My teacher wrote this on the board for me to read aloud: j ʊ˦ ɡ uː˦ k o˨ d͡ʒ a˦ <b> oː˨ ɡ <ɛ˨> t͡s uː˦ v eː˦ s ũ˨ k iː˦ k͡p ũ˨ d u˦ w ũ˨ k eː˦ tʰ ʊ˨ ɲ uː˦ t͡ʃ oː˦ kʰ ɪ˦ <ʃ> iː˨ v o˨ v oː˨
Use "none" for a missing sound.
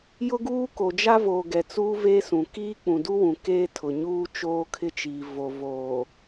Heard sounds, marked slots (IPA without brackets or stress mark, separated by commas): v, ɛ˨, t͡ʃ